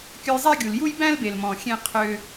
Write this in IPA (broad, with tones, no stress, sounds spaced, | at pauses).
kʲ ɵ˧ j zˤ æ˦ ɡʲ u˨ l j u˦ j b æ̃˦ l b e˨ l m ɔ̃˨ xʲ ẽ˦ qʰ ø˦